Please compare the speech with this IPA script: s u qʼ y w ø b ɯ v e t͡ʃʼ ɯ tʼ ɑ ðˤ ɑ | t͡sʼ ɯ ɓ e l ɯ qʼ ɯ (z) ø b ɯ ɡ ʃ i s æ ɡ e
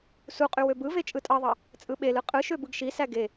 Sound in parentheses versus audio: incorrect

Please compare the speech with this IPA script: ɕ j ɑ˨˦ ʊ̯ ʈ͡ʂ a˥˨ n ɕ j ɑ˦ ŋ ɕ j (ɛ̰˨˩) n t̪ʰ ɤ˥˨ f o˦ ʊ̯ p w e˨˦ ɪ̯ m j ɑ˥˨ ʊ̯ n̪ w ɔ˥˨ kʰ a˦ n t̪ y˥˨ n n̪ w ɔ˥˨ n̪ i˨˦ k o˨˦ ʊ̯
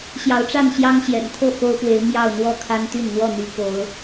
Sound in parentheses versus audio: correct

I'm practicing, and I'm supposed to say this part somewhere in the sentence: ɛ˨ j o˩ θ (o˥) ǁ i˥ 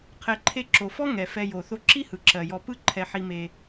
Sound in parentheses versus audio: correct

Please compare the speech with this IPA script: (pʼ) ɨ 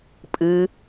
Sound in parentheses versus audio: correct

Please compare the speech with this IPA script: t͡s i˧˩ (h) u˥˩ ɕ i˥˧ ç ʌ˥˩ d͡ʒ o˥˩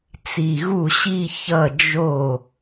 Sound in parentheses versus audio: incorrect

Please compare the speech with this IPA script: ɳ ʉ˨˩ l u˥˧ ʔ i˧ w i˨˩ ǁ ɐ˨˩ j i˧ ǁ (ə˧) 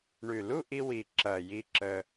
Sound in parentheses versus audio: correct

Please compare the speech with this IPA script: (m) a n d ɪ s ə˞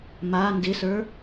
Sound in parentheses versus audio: correct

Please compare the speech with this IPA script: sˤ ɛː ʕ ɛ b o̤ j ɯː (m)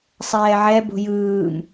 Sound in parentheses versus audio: correct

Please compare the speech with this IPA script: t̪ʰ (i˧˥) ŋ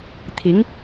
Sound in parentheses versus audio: correct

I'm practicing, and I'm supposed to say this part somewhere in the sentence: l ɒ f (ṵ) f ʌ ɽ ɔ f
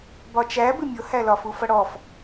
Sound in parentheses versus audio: incorrect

